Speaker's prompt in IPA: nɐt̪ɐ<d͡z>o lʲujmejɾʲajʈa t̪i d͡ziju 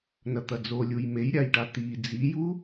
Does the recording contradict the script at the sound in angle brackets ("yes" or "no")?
no